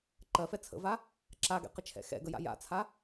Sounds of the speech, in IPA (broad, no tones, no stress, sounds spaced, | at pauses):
ǃ ɜ f ɛ t͡sʰ ə̰ v a | ǁ a ɡ ɛ̰ q ə t͡ʃʰ ɛ̰ x ɛ̰ ɡ ə j a̰ j a̰ t͡sʰ a